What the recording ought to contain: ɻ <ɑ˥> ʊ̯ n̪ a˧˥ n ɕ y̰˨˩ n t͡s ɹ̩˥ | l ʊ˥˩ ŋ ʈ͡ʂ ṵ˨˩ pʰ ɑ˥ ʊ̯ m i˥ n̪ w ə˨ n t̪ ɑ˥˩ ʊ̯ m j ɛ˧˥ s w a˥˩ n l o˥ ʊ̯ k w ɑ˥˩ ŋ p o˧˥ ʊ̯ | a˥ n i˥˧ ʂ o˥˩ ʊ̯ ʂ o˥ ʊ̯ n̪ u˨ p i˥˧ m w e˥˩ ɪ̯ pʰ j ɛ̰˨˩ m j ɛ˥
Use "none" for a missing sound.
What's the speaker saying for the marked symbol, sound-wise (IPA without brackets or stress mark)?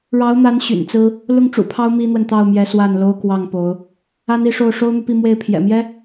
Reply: ɑ˧˥